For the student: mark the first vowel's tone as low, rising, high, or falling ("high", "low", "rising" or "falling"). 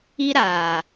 high